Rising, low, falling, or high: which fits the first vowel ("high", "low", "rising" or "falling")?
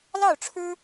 falling